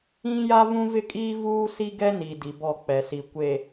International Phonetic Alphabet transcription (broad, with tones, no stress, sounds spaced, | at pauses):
ĩ˦ j a˦ v ũ˦ v ɪ˦ kʼ iː˦ v uː˦ s i˦ ɡ ɛ˦ n i˨ d i˨ b ɔ˦˨ k͡p ɛ˨ s i˨ kʷ e˨